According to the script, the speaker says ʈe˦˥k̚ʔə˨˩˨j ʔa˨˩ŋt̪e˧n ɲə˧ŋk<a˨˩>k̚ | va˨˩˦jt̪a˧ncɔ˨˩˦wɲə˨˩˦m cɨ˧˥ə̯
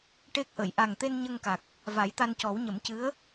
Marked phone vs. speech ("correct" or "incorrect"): correct